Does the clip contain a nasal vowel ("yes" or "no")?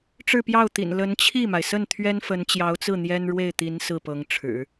no